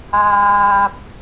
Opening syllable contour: high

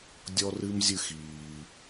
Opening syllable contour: high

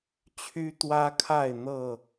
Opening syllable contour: high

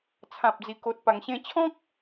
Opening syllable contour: low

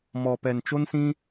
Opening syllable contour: low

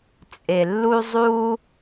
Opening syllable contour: low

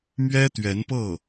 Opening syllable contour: high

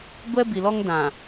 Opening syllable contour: high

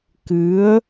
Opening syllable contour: rising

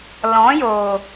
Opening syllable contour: rising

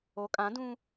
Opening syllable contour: rising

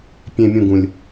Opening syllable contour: low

